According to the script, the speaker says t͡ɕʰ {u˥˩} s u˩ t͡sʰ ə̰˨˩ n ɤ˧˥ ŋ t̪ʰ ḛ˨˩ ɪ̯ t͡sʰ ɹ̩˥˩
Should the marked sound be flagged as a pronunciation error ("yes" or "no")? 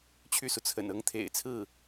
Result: yes